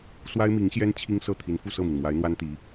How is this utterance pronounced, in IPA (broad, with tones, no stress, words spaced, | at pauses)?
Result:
swa˥ɪ̯mi˧˥ŋɕjɛ˥n t͡ɕʰi˥ŋsɤ˥˩ t̪ʰi˧˥nfu˥˧sɤ˥˩mi˩n mwa˧˥ɪ̯n̪wa˥nt̪i˧˥